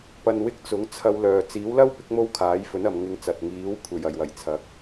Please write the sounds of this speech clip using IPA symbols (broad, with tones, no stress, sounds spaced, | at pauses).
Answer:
p ɐ˧ n w ɪ˥ k̚ t͡s ʊ˨˥ ŋ t͡sʰ ɐ˧ w l œː˨ t͡s iː˨˥ w l ɐ˥ w p ɪ˨˥ k̚ m o˥ w kʰ aː˨˥ j f ɵ˨˥ n ɐ˨ m ŋ ɪ˧ ŋ t͡s ɐ˨ t̚ ŋ iː˨˥ w kʷʰ e˨˩ j ɐ˨˩ j w ɐ˨˩ j t͡sʰ ɐ˨˥ k̚